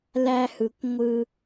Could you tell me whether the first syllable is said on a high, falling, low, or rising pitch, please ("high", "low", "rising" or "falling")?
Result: high